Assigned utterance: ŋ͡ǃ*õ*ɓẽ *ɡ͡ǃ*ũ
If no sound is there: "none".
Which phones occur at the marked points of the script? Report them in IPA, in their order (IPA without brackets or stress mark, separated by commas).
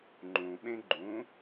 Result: ũ, ɡ͡ǃ